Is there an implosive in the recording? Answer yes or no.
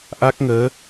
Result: no